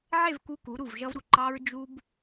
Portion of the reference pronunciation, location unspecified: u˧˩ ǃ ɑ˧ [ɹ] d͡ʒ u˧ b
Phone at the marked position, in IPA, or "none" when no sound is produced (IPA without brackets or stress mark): ɹ